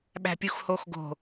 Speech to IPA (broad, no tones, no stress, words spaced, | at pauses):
ɓæ̤pʲuxhoxɡo̤